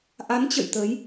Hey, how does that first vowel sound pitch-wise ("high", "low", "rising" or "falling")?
rising